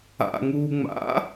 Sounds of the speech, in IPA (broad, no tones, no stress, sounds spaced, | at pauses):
a̰ ŋ uː ŋ͡m a̰